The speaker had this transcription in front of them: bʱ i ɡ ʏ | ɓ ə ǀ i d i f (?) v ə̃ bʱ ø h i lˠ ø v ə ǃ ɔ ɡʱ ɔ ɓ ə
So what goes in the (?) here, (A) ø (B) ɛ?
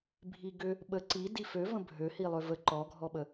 A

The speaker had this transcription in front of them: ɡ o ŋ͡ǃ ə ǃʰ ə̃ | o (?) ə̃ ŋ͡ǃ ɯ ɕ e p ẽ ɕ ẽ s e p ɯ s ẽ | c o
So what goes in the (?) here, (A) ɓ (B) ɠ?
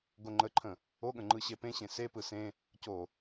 B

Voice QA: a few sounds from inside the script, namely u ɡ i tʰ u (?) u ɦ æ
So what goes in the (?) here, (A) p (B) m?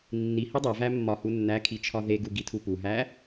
A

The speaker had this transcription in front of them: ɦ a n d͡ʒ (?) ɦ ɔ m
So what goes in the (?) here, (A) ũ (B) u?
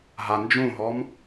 A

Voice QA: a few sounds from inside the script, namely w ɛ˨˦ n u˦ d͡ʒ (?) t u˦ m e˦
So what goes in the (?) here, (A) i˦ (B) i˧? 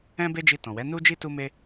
A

